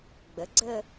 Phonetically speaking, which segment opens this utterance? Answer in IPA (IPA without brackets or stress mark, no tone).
ɡ͡b